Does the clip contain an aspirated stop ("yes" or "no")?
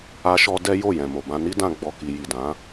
no